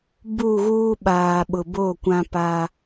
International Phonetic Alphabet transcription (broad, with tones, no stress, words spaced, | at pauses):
bu˦˨ɣuː˦ɓaː˨ ɓʊ˨ bo˦˨kʷã˦pa˦